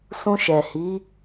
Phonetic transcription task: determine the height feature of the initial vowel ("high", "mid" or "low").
high